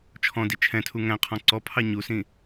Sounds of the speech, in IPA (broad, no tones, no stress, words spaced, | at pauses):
t͡ʃʰɔ̃di t͡ʃʰɛ̃tʰu ŋæ̃ qʰɔ̃ǀɔpʰɑ ɲusĩ